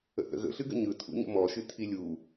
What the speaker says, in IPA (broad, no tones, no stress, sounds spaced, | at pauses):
ə̰ θ ə̰ ɣ ə̰ ɬ ɨ ɡ ə̰ ɲ ɯ tʰ ṵ ɲ ə̰ m ɔ ʃ ɨ tʰ i lʲ u